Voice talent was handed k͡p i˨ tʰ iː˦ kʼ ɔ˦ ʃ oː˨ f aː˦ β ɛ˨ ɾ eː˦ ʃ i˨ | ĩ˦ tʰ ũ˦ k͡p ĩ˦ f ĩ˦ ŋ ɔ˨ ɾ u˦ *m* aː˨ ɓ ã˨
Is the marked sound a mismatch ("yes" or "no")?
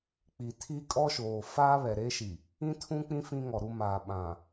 no